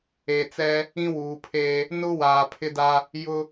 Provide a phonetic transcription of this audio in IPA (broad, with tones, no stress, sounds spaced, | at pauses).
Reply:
e˨ t͡s ɛ˦ | ĩ˦ w uː˨ pʰ eː˦ | n ʊ˦ w aː˨ pʰ ɪ˦ d a˦ | j ʊ˦